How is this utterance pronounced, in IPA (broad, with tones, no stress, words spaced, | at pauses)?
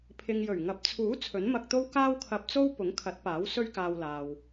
pʰɪ˨ŋjɵ˨˩ɥ ŋɐ˨˥p̚t͡sʰuː˨˥ t͡sʰɵ˨˥nmɐ˧k̚t̪o˥w kaː˥wkʰɐ˧p̚t͡so˥w pʊ˨˥ŋkʰɐ˨˥t̚paː˨˥w sɵ˥ɥkaː˧wlaː˨w